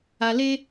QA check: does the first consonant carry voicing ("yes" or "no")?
yes